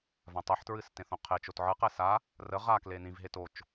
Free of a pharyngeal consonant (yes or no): no